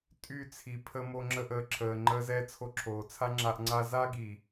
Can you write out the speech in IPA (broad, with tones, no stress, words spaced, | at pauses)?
tʼy˦˨ t͡sʰi˨ pʰə˧mo˧ ŋ͡ǁə˧ʔəː˨ǁʰəː˨ ŋ͡ǃəː˧zɛː˧ t͡sʰo˧ǁʰoː˨t͡sʰa˦ŋ͡ǁa˧ʔ ŋ͡ǀa˧za˦ ɡi˨